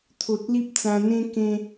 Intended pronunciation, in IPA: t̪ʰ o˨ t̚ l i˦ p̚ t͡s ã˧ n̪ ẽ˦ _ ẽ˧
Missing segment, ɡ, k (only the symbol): k